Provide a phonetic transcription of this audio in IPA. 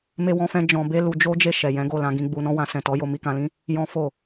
me˦wɔ̃˦fɛ̃˦ d͡ʒɔ̃˧ be˦lu˧d͡ʒo˦ d͡ʒe˦˨ ʃɛ˨jɛ̃˨˦ɡo˦˨ lã˨˦ɡĩ˧ɡ͡bu˧nɔ̃˦ wã˧sɛ̃˨tɔ˨˦ jo˧mi˧kã˧lĩ˦ | jɔ̃˦ fo˦˨

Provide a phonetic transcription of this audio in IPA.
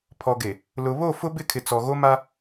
pʰɔ˨ɡe˨ | lʊ˨ βo˦˨fʊ˦bɪ˦˨kʰɪ˨ t͡sɔ˨ɣo˦ ma˦

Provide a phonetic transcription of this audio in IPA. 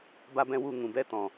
ba˦bɛ̃˦wu˦˨ ŋũ˨bɛ˧tɔ̃˨

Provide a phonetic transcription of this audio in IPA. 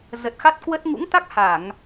zə˨˩t̚xa˦˥t̚kwə˦˥t̚ ŋṵ˧˥ŋt̪a˦˥k̚ ha˧˩˨ŋ

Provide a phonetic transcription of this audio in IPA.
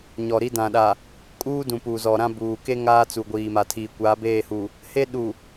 ɲɔ˨ ɾi˦dã˨ ɗa˨ | kʼuː˦dũ˨ pu˨zɔ˨ɾã˦ buː˨ke˦ ŋaː˦t͡su˨ɡʷiː˨ma˨ tʰiː˨kʷaː˨˦beː˦˨hu˨ | he˦ɗu˨

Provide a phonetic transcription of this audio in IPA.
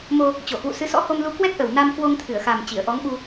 mo˧ | t͡ɕo˧˩hwṵ˧˨ sɨ˨˦sɔ̰˧˥ho˧mlu˧ kwɛ˦˥k̚ʔə˨˩w na˧m kwo˧ŋt̪ʰɨ˧˩ə̯xa˨˩m t͡ɕi˧˩ə̯ʔɔ˨˦ŋɓu˧

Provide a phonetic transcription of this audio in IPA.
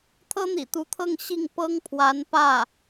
t̪ʰɤ˥n̪ḭ˨˩t̪u˧˥t̪ʰɤ˥˧ŋ ɕi˥˩ŋ pɤ˥ŋpʰwa˧˥n pä˥˩

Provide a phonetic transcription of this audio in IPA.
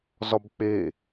zɒbk͡pe

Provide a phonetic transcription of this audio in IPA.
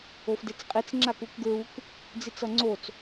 ofdet͡sqʼit͡s ŋ͡ǁakukɡɹuk | d͡zit͡sʌŋ͡ǀot͡s

